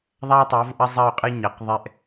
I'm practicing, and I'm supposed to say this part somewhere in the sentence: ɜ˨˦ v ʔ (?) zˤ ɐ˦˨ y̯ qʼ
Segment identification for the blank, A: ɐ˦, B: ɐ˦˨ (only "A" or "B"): A